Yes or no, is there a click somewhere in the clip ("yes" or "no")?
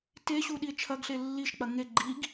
yes